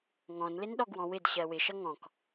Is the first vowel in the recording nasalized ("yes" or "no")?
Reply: yes